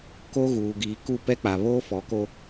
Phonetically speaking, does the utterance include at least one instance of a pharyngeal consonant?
no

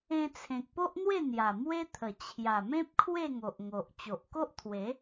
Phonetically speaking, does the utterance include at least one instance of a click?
no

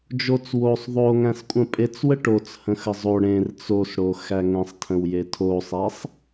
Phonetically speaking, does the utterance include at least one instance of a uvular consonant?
no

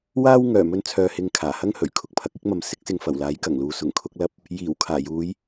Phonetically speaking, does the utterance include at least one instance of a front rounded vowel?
yes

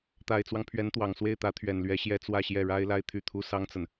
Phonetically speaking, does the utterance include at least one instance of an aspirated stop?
yes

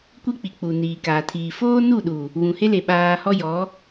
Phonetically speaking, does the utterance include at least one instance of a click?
no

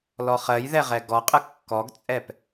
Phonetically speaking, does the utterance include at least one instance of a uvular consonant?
yes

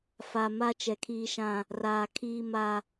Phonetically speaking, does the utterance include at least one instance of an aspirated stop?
yes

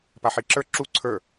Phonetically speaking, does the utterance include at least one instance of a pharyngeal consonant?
yes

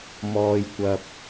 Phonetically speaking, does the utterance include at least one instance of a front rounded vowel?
no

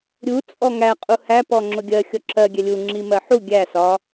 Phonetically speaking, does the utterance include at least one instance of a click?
yes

